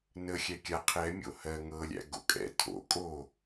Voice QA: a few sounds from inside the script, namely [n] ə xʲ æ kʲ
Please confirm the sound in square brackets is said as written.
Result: yes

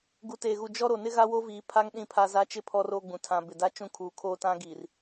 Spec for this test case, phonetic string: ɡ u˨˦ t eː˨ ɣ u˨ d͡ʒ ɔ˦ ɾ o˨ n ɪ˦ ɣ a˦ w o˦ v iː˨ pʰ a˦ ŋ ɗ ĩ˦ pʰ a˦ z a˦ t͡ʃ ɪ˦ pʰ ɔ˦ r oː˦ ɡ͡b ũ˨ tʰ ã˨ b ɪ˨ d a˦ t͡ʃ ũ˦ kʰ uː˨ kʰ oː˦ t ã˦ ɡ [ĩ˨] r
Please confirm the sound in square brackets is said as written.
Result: no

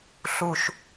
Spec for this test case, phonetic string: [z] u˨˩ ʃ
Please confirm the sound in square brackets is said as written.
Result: no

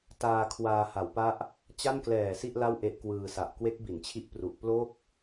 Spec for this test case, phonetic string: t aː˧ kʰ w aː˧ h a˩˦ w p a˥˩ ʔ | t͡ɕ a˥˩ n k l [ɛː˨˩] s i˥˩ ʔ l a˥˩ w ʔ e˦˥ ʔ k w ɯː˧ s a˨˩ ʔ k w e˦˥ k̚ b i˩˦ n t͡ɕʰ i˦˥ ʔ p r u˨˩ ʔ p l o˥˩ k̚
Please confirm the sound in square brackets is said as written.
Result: yes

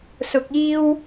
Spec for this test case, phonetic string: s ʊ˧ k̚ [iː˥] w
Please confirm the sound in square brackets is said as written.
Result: yes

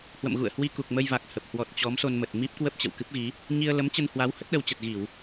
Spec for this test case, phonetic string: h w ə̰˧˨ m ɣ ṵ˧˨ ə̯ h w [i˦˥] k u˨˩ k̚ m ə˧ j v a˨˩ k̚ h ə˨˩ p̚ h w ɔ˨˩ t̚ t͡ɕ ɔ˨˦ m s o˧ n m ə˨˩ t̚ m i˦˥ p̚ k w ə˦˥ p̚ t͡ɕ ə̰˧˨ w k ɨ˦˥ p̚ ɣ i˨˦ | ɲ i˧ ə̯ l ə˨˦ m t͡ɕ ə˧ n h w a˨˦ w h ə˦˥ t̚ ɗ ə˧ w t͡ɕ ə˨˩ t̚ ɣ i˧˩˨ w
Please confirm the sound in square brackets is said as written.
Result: no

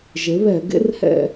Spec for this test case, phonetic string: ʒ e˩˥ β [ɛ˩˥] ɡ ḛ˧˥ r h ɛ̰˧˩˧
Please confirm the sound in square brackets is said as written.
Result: no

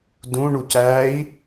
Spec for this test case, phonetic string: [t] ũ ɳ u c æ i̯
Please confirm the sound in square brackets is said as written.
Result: no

